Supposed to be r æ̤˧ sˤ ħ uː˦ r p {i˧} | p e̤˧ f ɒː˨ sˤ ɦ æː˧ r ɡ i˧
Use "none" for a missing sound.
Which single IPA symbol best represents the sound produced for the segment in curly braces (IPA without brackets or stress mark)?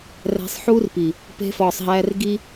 i˨